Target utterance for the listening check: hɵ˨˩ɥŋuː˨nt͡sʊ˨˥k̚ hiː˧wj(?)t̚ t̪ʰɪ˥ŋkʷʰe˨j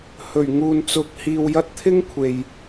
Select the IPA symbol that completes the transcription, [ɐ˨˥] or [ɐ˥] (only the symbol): ɐ˥